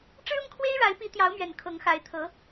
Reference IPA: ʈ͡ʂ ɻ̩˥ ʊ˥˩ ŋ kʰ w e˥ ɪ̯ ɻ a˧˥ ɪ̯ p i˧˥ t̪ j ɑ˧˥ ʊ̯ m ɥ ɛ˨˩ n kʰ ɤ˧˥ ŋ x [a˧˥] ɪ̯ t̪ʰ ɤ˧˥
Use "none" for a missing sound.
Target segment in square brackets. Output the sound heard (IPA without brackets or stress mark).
a˧˥